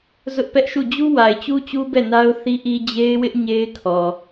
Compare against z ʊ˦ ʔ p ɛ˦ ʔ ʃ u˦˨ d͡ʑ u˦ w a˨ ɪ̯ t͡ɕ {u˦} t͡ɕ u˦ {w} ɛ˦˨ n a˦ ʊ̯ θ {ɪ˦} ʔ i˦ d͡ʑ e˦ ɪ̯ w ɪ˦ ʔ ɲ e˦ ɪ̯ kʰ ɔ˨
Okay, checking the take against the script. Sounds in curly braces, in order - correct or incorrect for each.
correct, incorrect: b, incorrect: i˦

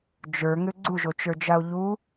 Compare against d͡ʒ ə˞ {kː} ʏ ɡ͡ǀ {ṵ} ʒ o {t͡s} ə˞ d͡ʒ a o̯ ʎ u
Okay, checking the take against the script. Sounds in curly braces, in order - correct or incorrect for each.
incorrect: ŋ, incorrect: u, incorrect: t͡ʃ

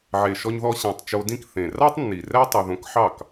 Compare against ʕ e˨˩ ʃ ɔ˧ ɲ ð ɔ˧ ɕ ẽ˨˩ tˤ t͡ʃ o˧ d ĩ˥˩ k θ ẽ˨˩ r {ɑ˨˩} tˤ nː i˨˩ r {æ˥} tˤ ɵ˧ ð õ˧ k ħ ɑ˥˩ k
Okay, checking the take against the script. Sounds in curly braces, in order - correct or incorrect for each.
incorrect: ɑ˥, correct

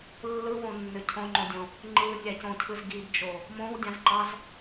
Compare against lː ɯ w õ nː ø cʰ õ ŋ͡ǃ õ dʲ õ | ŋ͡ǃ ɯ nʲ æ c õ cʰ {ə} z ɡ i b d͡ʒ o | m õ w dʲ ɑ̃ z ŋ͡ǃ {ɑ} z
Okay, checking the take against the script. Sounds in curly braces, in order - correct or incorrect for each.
incorrect: ɯ, correct

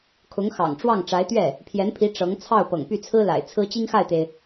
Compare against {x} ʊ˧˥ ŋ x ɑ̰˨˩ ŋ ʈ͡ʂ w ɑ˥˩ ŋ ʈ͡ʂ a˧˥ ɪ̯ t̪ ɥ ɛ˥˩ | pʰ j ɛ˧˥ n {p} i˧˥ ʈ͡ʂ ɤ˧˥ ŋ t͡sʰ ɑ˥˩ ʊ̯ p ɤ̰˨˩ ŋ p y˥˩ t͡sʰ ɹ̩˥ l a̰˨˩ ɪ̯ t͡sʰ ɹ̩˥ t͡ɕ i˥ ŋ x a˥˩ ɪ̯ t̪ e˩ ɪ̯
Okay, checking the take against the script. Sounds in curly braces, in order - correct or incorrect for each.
incorrect: kʰ, incorrect: pʰ

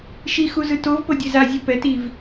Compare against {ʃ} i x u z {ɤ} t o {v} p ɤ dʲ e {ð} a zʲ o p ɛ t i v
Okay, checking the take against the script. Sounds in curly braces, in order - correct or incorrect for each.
correct, incorrect: ɯ, correct, incorrect: z

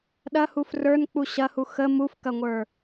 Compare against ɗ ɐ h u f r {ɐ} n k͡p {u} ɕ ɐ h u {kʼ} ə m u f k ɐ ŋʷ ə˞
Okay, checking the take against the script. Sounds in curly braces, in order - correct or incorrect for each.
incorrect: ə˞, correct, incorrect: x

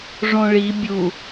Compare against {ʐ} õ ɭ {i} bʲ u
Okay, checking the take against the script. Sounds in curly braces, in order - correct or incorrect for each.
correct, correct

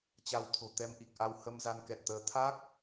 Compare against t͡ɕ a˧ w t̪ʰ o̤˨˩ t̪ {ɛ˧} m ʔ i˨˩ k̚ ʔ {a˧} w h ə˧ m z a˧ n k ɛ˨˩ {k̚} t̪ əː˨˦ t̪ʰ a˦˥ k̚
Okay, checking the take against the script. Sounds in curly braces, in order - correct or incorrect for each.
correct, correct, incorrect: t̚

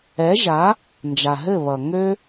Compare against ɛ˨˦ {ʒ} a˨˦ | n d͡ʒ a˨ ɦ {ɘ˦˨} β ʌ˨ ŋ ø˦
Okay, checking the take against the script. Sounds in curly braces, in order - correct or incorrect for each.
correct, correct

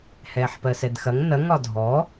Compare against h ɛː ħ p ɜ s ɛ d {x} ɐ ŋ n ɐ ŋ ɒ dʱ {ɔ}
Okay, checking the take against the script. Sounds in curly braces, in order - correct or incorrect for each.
correct, correct

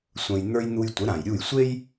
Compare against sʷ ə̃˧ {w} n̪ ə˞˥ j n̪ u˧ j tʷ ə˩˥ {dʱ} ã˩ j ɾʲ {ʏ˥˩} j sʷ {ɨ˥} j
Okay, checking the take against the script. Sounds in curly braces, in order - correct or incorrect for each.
incorrect: j, incorrect: ɾ, incorrect: u˥˩, incorrect: e˥

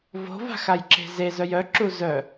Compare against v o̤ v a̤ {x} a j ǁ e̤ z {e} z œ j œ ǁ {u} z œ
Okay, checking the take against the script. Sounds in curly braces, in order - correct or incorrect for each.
correct, correct, correct

